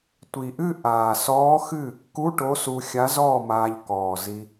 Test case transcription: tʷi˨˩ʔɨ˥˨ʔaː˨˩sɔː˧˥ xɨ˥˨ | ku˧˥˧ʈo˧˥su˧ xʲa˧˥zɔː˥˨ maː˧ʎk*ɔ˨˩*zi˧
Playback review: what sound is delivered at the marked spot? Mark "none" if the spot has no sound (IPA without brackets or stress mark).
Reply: ɔː˨˩